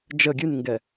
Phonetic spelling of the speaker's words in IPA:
d͡ʒ ə ɡʲ ʉ n ŋ ɡ ɛ

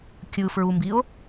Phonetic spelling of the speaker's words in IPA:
kʲ ɯ f ɹ u m b i o̯

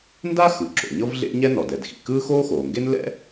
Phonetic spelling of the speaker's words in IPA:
n d a˥ x ɯ˩ ǁ o̰˩ ɲ ɤ˥ v ɮ ḛ˥ ɲ ɛ˥ n ɔ˩ d ɛ˩ d x ḭ˩ k ɯː˥ x oː˥ x oː˩ ŋ ɡ e˥ n l ɛ̰˥

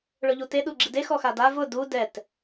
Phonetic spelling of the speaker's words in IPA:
ɭ ʊ ʎ u t e ɗ u ɡ͡ǁ i d e x ɔ x a d a v ʊ d u d ɛ t

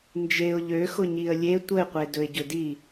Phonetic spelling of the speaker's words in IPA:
n d͡ʒ e ʊ̯ ʎ ø x ʊ ɲ i ə̯ lʲ e tʷ ə ɪ̯ qʷ e d ɵ ɪ̯ ɟ ɵ d i

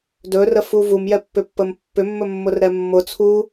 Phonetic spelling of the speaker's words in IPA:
d ɵ r ə f u v u m j ɛ pː ʏ pː ə m pː ʏ mː ɵ mː ʊ r ɾ ɛ mː ʊ t͡sʰ u

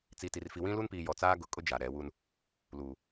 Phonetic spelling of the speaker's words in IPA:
t͡s i˨ t i˨ r f i˨ w ĩ˦ l u˦ n p iː˨ j ɔ˨ t͡s aː˦ ɡ ʊ˨˦ kʼ ʊ˦ d͡ʒ a˨ ɾ ɛ˨˦ w u˦ n | l uː˨

